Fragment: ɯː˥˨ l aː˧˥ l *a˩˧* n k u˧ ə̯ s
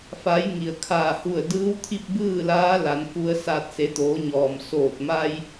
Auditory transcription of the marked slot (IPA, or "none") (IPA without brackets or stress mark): a˩˧